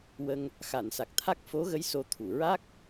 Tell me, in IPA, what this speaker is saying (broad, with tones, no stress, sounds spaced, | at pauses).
w ə˧ ŋ | x a˨˩˨ n s a˨˩ k̚ t̪ʰ a˦˥ k̚ f o˧˥ ɣ ə˧˥ j s o˧ t̪ʰ u˨˩˨ ɹ a˦˥ k̚